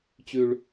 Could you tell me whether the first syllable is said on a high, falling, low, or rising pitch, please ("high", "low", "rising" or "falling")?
low